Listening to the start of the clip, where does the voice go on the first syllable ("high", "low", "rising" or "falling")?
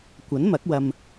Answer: rising